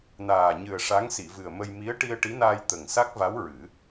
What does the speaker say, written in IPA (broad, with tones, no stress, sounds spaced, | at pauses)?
n aː˨˩ ɲ ɨ˨˩ ə̯ ʂ a˧˥ ŋ s i˨˩˨ v ɨ˨˩ ə̯ m ə˧ j m i˧˥ ə̯ ʈ i˧ ə̯ ʈ i˧˥ n aː˧ j t̪ ə˨˩ ŋ s a˦˥ k̚ v a˧˥ w ɹ ɨ˨˩˦